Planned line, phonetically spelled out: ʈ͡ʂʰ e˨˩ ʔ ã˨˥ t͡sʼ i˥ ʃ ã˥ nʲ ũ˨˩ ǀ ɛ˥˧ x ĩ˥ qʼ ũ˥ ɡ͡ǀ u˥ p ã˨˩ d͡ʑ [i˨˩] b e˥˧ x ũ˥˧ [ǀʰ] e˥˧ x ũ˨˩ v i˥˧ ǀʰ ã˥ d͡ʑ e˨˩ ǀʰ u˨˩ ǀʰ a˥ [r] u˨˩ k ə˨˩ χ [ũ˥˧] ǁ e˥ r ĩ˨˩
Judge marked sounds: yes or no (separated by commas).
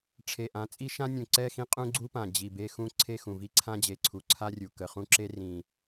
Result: yes, yes, no, yes